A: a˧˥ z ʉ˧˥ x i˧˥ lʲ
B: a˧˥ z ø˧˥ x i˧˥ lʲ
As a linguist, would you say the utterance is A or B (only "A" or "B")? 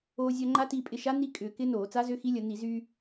B